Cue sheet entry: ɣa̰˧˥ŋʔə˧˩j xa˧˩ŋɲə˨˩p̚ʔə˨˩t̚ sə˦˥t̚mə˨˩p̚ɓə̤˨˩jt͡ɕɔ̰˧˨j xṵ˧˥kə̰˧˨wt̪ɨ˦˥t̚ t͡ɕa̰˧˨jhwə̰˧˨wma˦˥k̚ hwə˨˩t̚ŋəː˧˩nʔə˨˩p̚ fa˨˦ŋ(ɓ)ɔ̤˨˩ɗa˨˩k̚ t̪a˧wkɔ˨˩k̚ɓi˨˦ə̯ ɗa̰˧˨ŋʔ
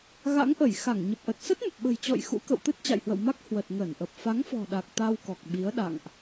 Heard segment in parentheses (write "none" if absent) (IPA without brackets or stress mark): f